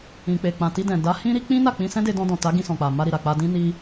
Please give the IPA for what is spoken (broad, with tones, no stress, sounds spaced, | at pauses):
ĩ˨ k͡p e˨ k͡p ã˨ t i˧ d ɛ̃˨ d a˨˦ h ĩ˦ ɾ i˦ k͡p ĩ˦ n a˦˨ k͡p ĩ˧ s ɛ̃˦ d e˧ d ɔ̃˧ d ɔ̃˨ t a˨˦ ɡ ĩ˧ s ɔ̃˨ k͡p a˨ m a˧ ɾ i˨ ɾ a˨ k͡p a˧ d ĩ˦ n i˦